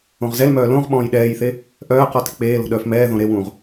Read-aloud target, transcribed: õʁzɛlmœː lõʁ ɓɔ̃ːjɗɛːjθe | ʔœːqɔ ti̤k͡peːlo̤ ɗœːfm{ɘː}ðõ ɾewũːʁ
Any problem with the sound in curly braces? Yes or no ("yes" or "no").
yes